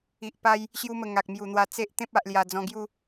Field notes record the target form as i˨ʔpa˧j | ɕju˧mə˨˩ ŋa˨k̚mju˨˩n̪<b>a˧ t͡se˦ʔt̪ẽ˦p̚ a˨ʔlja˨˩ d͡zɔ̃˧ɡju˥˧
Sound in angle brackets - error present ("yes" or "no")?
yes